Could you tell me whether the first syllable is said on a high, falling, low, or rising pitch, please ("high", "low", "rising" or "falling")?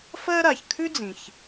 high